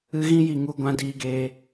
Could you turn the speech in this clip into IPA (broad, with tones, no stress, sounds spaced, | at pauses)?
ɨ˧ ɣ ĩ˧ j i˨ ŋ u˧ ɡʷ ã˧ d iː˧ ɡ eː˧